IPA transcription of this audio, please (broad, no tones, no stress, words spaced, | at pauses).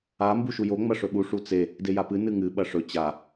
a mbuʃujo ŋ͡mɐʂɵɓu ʂut͡se | dejapɨ nɨŋɨ ɓɐʂɵ t͡ɕa